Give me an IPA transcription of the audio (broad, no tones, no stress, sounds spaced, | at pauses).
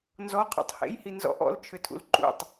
n z ɔ qʰ ɔ̰ tˤ h ḛ j h i n z ɔ̰ ʔ ɔ̰ l t͡ʃʰ ʏ tʰ ṵ l ǃ ṵ tˤ